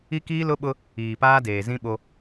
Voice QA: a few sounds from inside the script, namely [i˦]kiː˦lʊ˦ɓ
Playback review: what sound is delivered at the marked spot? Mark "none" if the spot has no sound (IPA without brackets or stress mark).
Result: i˦